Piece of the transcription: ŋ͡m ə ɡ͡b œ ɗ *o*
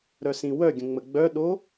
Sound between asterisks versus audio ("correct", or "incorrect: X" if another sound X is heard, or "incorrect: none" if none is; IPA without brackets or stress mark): correct